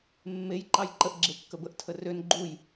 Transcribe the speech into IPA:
mːej ǃɑjǃəʔ ɡ͡ǁekːəbəʔ tʰərøn ɡ͡ǃuj

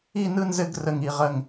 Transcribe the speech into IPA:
i˥˨nɯ˥˨nzɘ˥˨ɡ rə˧˩ŋi˧˩ʁə˧˩ŋ

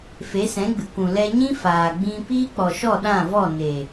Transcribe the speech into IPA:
fe˨˦sɛ̃˨˦ɡ͡bɨ˨kʷũ˨ lɛ˧ɲĩ˦ faː˨ɡ͡bĩ˧ piː˦k͡pɔ˨ʃɔ˦˨ ɗã˦˨vɔ˦˨ ne˨

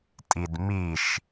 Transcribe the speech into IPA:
tʼidmiʃ

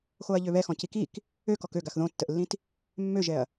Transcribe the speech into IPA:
xoɐ̯ʎøβɛxɔ̃ cikik | økɔk ø ɡaxðõtːəʔlːĩt | mːøʒɛɐ̯

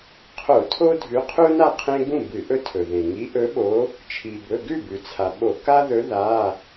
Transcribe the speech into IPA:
qʰo˧˩˧ tʰo˦dʱʉ˨˦qʰu˦ na˥˩qʰẽ˦ɡũ˥˩ bɨ˧˩˧ʔɵ˦tʰɵ˩ðẽ˩ ŋi˨˦ʔɵ˨˦ɓo˨˦ | t͡ʃʰi˩bɵ˩˧˩ ɡʉ˥˩bʉ˩t͡sʰa˩ ɓo˧˩˧ ka˦ðɵ˨˦ ða˩˧˩

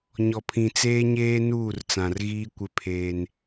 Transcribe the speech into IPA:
ɲɔ˨pʰĩ˨t͡seː˦ɲeː˦ nuː˦˨rt͡sã˨rɣiː˦kʷɪ˦ pʰeː˦n

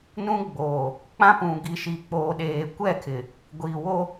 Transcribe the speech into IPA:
nũ˦ɡ͡boː˨ | k͡pã˦pũ˨ ɡi˨ʃi˨k͡poː˨ɗeː˨ kʷɛ˦˨kʰɪ˨ | ɡʷiː˨wo˦

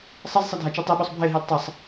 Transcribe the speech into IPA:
sˤʌzsˤʌ dʱat͡ʃitˤiɓosˤ bʱeɦil tˤʌsˤ

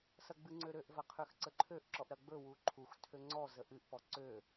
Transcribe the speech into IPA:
sɐɡ͡bɨŋ͡ǀøɾøʔ vɐqʰøxǀəǃʰøʔ ǁɔʔɾɐɡ͡bɵ wuǃʰux tʰøŋ͡ǀɔ zəʔɨʔ pɔǀø

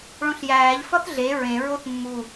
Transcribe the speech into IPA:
ɭõɬjæːʎ fɒθɮe ɹẽ ɹoθmːu

